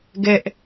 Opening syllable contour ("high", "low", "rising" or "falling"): high